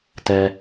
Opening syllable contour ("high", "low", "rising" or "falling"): low